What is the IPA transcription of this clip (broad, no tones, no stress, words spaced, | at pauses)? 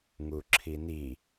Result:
ŋuǁʰini